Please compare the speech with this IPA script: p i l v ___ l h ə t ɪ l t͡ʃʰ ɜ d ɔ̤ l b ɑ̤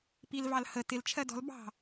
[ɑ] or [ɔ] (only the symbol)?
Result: ɑ